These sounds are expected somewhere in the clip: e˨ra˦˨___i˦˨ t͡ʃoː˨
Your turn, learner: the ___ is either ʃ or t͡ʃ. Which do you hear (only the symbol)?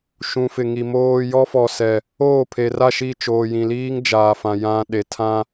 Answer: ʃ